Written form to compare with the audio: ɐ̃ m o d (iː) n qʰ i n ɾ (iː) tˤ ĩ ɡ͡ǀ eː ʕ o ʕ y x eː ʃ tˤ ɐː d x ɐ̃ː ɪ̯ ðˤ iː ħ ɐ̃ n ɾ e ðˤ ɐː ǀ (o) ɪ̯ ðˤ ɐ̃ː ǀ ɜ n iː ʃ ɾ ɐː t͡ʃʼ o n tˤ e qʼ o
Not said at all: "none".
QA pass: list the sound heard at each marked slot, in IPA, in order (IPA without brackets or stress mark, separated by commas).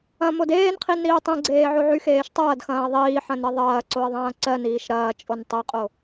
eː, iː, o